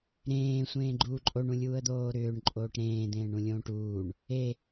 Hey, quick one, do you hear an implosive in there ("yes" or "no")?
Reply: no